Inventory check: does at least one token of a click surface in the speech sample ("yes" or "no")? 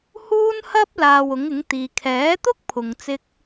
no